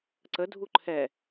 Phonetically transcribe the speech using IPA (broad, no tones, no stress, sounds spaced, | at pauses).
ǀ ə dʱ u ǃʰ ɛ